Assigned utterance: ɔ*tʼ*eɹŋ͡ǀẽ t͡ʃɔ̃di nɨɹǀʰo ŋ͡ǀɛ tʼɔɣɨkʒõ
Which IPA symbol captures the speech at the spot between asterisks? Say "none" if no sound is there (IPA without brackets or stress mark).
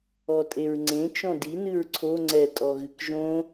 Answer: tʼ